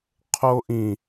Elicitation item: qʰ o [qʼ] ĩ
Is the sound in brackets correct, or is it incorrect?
incorrect